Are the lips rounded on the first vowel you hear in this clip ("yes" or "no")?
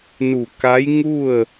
yes